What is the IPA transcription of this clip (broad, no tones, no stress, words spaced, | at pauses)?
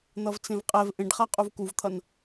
n̪ʌvt͡sẽvqʼɛv ʔẽɖχa qʼuvkuvt̪ʰʌn